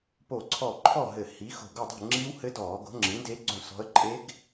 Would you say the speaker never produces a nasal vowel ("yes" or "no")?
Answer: no